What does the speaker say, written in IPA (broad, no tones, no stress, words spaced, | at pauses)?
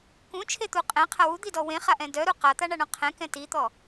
kũt͡ʃʰet̪u qʼɛ̃qʰa wud̪idɔ wẽχaʔɛ̃ dœɾu qat̪aɳaɳɔ̃ qʰɛ̃kɛ̃ tit̪ɔ